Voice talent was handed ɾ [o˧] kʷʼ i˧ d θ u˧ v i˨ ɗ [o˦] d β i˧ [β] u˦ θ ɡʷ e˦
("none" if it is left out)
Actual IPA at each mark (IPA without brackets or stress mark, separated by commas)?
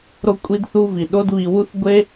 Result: o˧, o˦, w